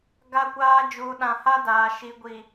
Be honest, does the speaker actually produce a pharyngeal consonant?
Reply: no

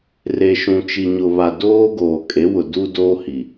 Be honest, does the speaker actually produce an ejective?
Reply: yes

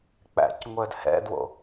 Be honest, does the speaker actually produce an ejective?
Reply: no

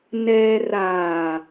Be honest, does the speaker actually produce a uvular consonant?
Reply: no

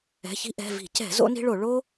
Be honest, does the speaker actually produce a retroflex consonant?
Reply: yes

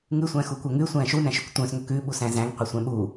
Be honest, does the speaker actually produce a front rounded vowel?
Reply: yes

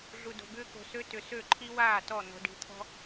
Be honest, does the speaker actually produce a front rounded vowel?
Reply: yes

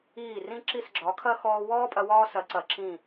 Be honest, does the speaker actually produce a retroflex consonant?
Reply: no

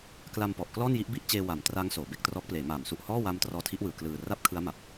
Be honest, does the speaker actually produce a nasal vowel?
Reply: no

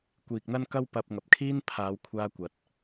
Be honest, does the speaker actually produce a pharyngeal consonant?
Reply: no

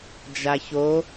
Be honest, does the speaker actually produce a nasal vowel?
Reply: no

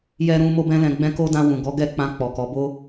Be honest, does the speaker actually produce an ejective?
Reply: no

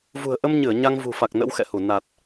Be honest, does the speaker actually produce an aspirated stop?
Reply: no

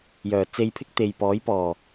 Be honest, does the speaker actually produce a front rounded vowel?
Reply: yes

